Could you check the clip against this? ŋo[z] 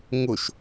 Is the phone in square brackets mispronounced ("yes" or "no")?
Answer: yes